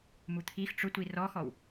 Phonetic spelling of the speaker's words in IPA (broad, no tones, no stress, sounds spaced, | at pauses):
m u t̪ʰ i x ʈ͡ʂ ʊ tʷ i r ɔ x ɔ w